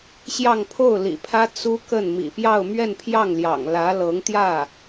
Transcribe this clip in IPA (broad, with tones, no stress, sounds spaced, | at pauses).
ɕ j ɑ˥˧ ŋ pʰ o˥˩ ʊ̯ l ḭ˨˩ pʰ ä˥ t͡s u˥ k ə˥˩ n m ḭ˨˩ p j ɑ˥˧ ʊ̯ m ɥ ɛ˥˧ n pʰ j ɑ˥˩ ŋ l j ɑ̰˨˩ ŋ l ä˧˥ l ɤ˧˥ ŋ t̪ j ä˥˩